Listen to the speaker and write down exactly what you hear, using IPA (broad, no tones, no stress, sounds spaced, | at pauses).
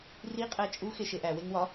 r i qʼ æ t͡ʃʼ u x e ʃ e ʔ æ w e ŋ w ɒ